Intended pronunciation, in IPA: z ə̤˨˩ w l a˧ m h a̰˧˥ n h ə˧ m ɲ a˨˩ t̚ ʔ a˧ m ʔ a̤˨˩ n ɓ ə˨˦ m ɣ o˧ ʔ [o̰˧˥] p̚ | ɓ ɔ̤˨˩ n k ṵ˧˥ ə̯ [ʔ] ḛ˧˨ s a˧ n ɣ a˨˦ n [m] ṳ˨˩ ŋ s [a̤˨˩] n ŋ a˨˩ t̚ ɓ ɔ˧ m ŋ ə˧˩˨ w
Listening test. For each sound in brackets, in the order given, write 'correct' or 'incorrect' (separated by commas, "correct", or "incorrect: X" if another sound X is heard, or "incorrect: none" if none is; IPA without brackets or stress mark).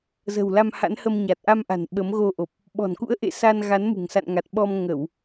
incorrect: o˨˩, correct, correct, incorrect: a̰˧˨